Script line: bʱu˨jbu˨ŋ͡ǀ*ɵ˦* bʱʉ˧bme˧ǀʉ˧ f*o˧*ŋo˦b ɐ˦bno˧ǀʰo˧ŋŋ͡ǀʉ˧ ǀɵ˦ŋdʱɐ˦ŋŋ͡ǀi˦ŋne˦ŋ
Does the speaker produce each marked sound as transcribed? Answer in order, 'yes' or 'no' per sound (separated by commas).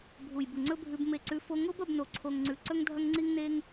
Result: yes, yes